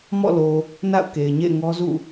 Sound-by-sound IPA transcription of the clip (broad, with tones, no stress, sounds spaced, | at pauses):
m ɔ̰˦˨ l o˨ | n a̰˦˨ ʊ̯ k e˨ ɪ̯ ɲ ḛ˦˨ ɪ̯ ŋ ɔ˦ z ṵ˦˨